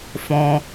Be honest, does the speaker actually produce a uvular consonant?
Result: no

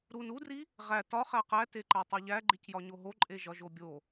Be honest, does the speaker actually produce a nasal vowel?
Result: no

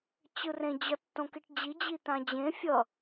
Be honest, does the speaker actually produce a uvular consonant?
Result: no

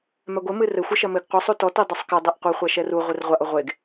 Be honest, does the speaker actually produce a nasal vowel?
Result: no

